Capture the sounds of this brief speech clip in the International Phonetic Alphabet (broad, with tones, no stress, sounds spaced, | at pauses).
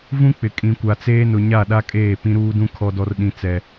v ũ˦ k͡p ɪ˨ kʼ ĩ˨ kʷ a˨ t͡s eː˦ n ʊ˨ ɲ a˦˨ ɗ a˦ kʼ eː˦˨ p ĩ˦ ɾ uː˦ d ũ˦ kʰ ɔ˨ d ɔ˨ r ɗ ĩ˨ t͡s ɛ˨